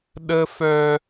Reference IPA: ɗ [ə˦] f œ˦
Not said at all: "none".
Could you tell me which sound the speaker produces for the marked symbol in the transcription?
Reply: ə˦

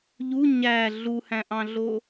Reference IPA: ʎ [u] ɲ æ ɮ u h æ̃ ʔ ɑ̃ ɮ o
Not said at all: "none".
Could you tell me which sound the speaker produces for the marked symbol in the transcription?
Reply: u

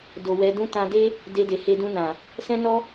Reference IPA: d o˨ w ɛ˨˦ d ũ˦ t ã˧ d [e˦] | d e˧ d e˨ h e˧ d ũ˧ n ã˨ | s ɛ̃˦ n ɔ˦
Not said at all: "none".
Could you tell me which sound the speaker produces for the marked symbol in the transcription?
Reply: e˦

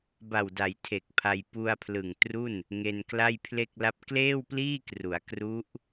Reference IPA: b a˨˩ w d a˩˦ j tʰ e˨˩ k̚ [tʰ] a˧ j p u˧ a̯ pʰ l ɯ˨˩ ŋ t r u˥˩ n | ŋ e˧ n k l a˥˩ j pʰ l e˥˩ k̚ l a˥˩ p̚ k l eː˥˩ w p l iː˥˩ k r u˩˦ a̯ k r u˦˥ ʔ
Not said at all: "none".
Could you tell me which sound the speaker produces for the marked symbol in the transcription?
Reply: pʰ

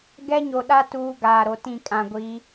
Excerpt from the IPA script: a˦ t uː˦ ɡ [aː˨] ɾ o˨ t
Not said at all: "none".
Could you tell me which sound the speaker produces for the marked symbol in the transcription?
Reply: aː˨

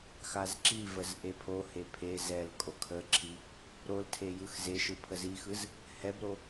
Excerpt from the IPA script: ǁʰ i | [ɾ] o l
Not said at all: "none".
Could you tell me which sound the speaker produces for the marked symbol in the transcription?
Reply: ɾ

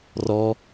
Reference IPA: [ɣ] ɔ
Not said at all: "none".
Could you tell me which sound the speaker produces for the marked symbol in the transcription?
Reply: r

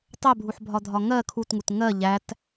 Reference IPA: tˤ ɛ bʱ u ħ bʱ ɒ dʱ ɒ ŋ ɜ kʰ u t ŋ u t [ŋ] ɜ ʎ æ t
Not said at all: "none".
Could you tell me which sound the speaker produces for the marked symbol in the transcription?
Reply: ŋ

